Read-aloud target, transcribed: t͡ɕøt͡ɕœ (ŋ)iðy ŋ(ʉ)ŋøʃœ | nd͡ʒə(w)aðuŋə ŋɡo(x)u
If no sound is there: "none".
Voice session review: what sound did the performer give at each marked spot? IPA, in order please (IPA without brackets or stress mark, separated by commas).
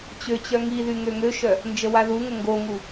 ŋ, ø, w, ŋ